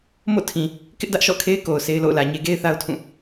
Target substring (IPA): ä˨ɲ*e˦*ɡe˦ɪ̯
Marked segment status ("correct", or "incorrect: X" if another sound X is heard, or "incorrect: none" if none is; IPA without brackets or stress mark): correct